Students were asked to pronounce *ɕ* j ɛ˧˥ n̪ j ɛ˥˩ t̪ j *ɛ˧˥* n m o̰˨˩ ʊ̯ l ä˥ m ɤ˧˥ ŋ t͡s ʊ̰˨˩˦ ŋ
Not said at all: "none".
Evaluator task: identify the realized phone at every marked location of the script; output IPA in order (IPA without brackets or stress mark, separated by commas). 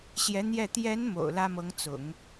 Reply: ɕ, ɛ˧˥